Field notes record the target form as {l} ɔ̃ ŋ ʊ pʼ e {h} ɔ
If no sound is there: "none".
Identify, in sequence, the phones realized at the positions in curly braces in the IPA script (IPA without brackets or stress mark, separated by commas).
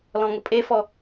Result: l, f